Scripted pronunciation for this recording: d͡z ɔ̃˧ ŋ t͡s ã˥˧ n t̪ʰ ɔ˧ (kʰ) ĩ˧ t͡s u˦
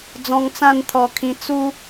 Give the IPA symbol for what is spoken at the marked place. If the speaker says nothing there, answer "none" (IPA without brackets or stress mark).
kʰ